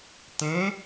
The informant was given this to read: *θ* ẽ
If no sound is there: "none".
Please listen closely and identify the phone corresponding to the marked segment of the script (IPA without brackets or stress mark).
t